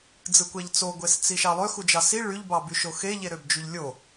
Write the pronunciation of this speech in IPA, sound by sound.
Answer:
d͡z ɯ kʷ æ ʎ t͡s o ɡʷ e s t͡s i ʃ ɑ lˠ ø x u d͡ʒ ɑ s i ɭ y ʎ b ɑ b y ʃ o x e ʎ e ɾ ø b d͡ʒ u ʎ lʲ o

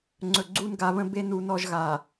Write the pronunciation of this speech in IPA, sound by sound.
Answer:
ŋ͡ǀ ɵ˨ ɡ͡ǀ u˦ n ɡ a˨˦ β ə̃˦ b e˦ n u˦ n ɔ˦ ʒ ɣ a˨

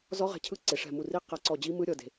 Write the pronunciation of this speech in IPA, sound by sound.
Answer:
z ɔ˦˥ ʁ ɛ̤˧˩ cʰ ɯ˦˥ ǀ e˩ ʂ ɛ̤˧˩ m u˧˩ r i˦˥ q a˧˩ ǀ ɔ˧˩ d͡ʑ i˦˥ m ɯ˦˥ ɾʲ ɔ˧˩ d e̤˩

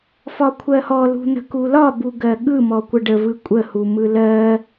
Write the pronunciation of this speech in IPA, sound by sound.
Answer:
f ɒ kʷʰ ɜ h ɔ l ṳ n̪ ə̤ k u l ɒ b u ɡ ɜ ɠ ɯ m ɔ kʷ ə ɖ ə v ɯ kʷʼ ə h u m ɯ l ɜ

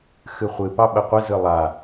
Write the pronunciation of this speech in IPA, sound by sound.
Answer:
x ɨ χʷ ɨ p ɑ ɓ ə qʷ ə z ɨ lˠ a

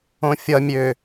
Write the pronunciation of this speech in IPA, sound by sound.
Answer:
õ fʲ ʌ mʲ ø

